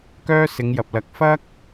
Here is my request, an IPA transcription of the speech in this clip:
k œː˥ s ɪ˨˧ ŋ j ɐ˨ p̚ l ɐ˨˥ k̚ f ɐ˥ k̚

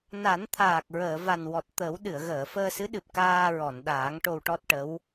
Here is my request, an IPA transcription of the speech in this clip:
n a˨˩˦ n t̪ʰ aː˨˩ k̚ ɹ əː˨˩˨ v a˨˩ n w ɔ˨˩ t̚ t̪ əː˨˩˦ w ɗ ɨ˨˩˨ ə̯ ɣ əː˨˩˨ f əː˧ s ɨ˧˥ ɗ ɨ˨˩ p̚ k aː˧ ɹ ɔ˨˩˨ n ɗ aː˨˩˦ ŋ ʈ o˧ w ʈ ɔ˦˥ t̚ ʈ ə˧˥ w

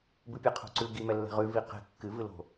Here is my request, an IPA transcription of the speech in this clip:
b ɨ pʲ ɛ qʰ o̤ ǀ ʉ ɡ i m ɛ lː ɛ̤ ʁ ʉ v i q ɛ̤ kː ɨ v ɨ l o̤

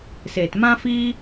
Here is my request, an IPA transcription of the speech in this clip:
s e˨ t m ã˦ f iː˦

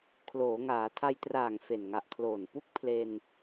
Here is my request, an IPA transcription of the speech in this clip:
kʰ l oː˩˦ ŋ aː˩˦ tʰ a˧ j t r aː˨˩ ŋ f e˨˩ n ŋ a˨˩ ʔ kʰ l oː˨˩ n p u˦˥ k̚ pʰ l e˧ n

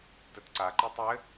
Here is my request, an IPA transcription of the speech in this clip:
t ɘ t ǀ a ǃ i tˤ ɘ

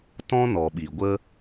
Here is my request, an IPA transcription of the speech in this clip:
t ɔ̃˦ n ɔ˨ ɓ i˨ ɡʷ ə˦

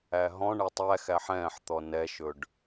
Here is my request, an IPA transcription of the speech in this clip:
æ ɦ ɔ̃ ɳ ɛ tˤ æ x æ ħ ɛ̃ː ħ t̪ ɔ n ɛ ʃ ɵ ɖ

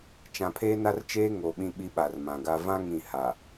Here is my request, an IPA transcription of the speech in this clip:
t͡ʃ ã˨ pʰ eː˦ n a˦ r t͡ʃ eː˦ ŋ o˨ ɓ ĩ˦ ɓ i˦ ɓ a˨ r m ã˨ ɡ a˦ v ã˦ ŋ ĩ˦˨ h a˨

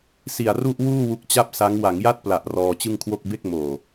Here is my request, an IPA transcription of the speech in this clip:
s i˨˩ a̯ r u˥˩ ʔ w uː˥˩ w u˦˥ k̚ t͡ɕ a˥˩ p̚ s a˦˥ ŋ w a˩˦ ŋ j a˥˩ t̚ p l a˨˩ ʔ r ɔː˧ t͡ɕ ɯ˥˩ ŋ kʰ w o˥˩ k̚ b e˥˩ k̚ m oː˨˩

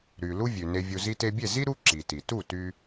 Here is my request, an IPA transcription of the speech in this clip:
ɾ y˩ l u˥ vʲ ʉ˩ n e˧ vʲ u˧ z i˧ t e˧ bʲ e˥˩ z i˥ ɾ u˥ ǁ i˩ t i˩ t u˥˩ t y˧

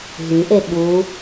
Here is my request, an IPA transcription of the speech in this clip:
ɦ y ʔ e ɓ u

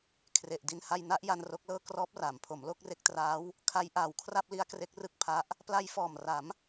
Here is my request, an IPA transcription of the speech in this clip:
kʰ r e˨˩ ʔ d i˧ n h a˧ j n a˦˥ ʔ j a˧ n r o˦˥ k̚ l ɤː˥˩ k r ɔː˦˥ p̚ r aː˩˦ m pʰ o˩˦ m l o˥˩ k̚ r e˦˥ k̚ t r aː˦˥ w | kʰ a˦˥ j ʔ aː˨˩ w kʰ r a˥˩ p̚ l i˦˥ a̯ k r e˦˥ k̚ r ɯ˥˩ k̚ pʰ a˦˥ ʔ | p l a˧ j f ɔː˨˩ m r a˩˦ m

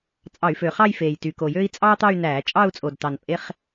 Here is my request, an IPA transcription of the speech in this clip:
t͡sʼ ɑ˧˩˧ y̯ f ø˨˩ χ ɑ˥˧ j f eː˨˩ j t y˨˩ k o˨˩ j ø˥ i̯ t͡sʼ ɑː˥ t̪ ɑ˥˧ y̯ n æː˧˩˧ t͡ʃʼ ɑ˥˧ u̯ t͡sʼ o˨˩ d t ɑ˨˩ n pʼ e˥ χ

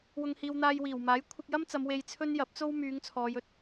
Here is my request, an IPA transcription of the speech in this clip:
w ʊ˧ ŋ h iː˧ w n̪ aː˧ j w iː˨˩ w m aː˨˥ j kʷʰ ɪ˧ k̚ j ɐ˥ m t͡s ɐ˨˧ m w e˧ j t͡sʰ ɵ˥ n j ɐ˨˥ p̚ t͡s o˥ w m yː˨˧ ŋ t͡sʰ ɔː˨˧ j ɵ˨ t̚

